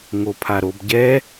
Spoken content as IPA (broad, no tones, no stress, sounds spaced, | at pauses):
ŋ o pʰ a ɾ o b ɟ ɛ